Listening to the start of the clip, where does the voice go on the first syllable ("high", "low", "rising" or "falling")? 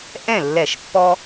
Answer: falling